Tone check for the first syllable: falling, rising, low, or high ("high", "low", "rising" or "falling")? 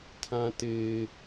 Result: high